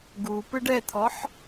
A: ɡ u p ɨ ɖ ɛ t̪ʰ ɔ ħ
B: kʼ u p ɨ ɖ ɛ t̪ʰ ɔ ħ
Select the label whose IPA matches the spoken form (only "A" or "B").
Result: A